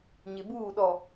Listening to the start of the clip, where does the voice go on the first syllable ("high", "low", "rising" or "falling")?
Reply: low